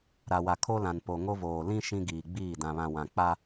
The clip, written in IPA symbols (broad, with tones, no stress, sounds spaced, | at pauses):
ɾ a˨ w a˨ kʰ o˦ l ã˨ n p o˨ ŋ o˦ v oː˨ l ĩ˦ ʃ ĩ˦ ɡ iː˨ ɡ͡b iː˦˨ d ã˨ β ã˨ w ã˨ k͡p a˦